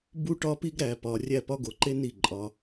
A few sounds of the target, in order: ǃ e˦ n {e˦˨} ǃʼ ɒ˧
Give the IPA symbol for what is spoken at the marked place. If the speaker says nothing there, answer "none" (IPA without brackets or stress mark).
i˦˨